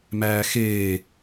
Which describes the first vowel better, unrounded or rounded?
unrounded